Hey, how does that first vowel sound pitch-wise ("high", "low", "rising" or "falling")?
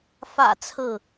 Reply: low